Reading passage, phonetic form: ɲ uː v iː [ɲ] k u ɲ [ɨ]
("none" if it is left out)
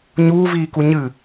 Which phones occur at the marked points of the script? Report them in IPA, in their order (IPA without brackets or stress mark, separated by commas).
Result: none, ɨ